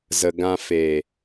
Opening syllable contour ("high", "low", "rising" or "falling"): low